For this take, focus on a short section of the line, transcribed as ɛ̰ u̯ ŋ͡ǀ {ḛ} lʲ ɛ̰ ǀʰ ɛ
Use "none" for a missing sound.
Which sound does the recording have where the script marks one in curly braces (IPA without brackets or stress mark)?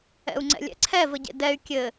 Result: ɛ̰